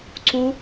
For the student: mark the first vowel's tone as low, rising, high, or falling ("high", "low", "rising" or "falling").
high